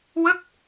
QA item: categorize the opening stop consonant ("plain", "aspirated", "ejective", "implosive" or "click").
plain